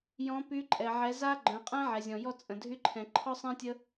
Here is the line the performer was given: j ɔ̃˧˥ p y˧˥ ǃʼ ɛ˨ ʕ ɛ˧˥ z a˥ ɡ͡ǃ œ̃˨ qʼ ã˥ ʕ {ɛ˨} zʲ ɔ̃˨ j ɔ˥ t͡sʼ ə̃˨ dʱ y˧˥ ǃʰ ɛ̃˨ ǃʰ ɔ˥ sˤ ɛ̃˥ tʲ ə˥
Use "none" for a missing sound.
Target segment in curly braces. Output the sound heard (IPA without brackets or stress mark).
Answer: ɛ˨